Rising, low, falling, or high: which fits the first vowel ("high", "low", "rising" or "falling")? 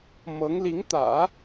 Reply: rising